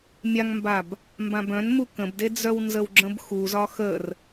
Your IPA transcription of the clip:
mʲ a ŋ m b a b | m b ã b œ̃ n m u k ə̃ b d e d͡z œ w n z ə w ɡ͡ǁ ə̃ b x u z ɒ x ə r

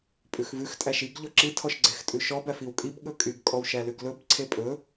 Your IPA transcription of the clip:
pʼ ʉ x v ʉ x tʼ æ ʃ i ɡ ʎ ɔ ǁ i tʰ ɔ ʃ ɡ͡ǀ e x tʼ ʉ ʃ ɔ b æ f i w kʼ i b ɠ ɵ kʼ y ɡ kʼ ɔ w ʃ æ l ʉ ɡ l ɵ b ǀʰ e pʼ ɵ

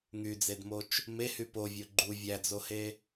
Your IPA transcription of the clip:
ŋ y d͡z e d m o t͡ʃ | m e h y p o vʲ o ɡ͡ǃ u vʲ æ d͡z o h e

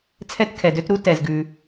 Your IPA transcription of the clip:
t͡sʰ ɛ˥ t kʰ ɛ˩ d ø˥ t ɾ u˥ t ɛ˩ z ɡ ʉ˩

